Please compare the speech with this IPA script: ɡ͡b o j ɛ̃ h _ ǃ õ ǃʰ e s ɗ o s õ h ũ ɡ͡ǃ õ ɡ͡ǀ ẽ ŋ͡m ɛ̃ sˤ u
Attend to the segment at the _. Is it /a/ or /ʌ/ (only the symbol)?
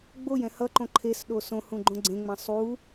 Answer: ʌ